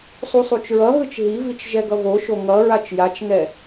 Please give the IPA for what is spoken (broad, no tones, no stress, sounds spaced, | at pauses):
sˤ u sˤ u t͡ʃ ɹ ʌ ɦ ɯ t͡ʃ ɦ i v i t͡ʃ ʒ ɛ ɡ ʌ v o ʃ o ŋ ʌ ɹ a t͡ʃ j a t͡ʃ ŋ ɛ